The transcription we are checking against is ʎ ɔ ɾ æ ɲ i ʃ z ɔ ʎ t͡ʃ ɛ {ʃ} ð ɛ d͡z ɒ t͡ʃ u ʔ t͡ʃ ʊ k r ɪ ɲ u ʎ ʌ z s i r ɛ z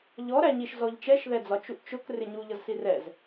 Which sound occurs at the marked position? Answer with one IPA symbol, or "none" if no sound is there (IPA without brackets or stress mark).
ʃ